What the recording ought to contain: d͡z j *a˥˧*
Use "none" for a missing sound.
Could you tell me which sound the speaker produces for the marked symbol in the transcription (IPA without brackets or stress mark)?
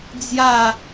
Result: a˥˧